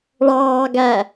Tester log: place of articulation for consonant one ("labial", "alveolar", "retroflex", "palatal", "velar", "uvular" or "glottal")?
retroflex